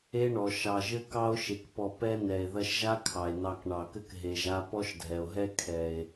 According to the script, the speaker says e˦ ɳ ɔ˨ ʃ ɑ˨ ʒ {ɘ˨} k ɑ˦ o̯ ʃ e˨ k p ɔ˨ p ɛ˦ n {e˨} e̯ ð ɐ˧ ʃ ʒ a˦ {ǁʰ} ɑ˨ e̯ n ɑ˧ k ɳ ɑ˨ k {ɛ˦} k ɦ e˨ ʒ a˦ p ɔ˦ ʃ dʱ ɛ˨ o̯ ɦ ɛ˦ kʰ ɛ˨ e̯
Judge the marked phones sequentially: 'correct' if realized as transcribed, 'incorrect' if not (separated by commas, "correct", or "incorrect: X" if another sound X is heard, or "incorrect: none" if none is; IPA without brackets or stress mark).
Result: incorrect: ɘ˦, incorrect: ɛ˨, incorrect: kʰ, incorrect: ɘ˦